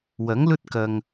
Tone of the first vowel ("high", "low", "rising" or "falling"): rising